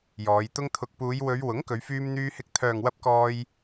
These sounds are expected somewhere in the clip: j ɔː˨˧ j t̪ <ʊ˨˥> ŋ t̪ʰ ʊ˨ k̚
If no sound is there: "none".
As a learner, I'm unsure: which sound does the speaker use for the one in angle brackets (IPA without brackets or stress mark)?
ʊ˧